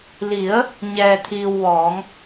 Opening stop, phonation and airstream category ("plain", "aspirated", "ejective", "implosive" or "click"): aspirated